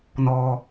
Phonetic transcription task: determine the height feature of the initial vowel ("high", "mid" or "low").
mid